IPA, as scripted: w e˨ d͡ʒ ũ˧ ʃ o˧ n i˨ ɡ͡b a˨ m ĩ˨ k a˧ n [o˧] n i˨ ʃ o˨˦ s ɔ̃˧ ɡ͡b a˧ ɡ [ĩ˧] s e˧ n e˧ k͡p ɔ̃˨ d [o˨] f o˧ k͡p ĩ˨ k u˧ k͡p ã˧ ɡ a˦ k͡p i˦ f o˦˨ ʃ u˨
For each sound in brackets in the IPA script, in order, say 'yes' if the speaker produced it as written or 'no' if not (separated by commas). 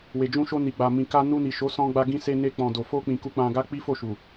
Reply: no, yes, yes